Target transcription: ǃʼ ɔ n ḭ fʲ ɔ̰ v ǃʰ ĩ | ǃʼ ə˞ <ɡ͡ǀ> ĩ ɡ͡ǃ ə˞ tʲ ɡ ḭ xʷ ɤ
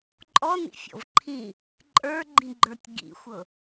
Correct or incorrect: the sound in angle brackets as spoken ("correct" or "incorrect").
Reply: incorrect